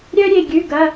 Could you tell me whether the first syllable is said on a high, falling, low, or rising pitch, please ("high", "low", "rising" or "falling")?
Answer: high